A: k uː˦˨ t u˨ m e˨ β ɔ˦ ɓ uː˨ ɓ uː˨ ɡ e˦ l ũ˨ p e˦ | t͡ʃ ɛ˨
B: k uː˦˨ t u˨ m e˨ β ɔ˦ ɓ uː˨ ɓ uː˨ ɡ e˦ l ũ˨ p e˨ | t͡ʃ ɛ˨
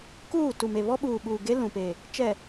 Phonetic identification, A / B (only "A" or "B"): B